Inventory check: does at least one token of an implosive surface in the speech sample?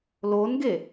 no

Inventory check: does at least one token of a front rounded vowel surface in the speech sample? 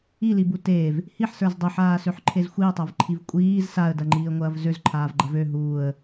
yes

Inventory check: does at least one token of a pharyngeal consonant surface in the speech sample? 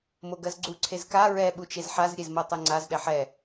yes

